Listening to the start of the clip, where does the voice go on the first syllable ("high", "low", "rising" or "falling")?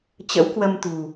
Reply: rising